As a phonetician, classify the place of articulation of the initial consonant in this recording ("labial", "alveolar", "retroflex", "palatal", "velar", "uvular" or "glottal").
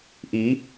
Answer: glottal